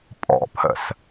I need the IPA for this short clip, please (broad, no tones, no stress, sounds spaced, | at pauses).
pʼ ɔ̰ pʰ ə̰ s